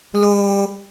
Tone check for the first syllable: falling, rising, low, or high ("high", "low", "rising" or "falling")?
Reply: high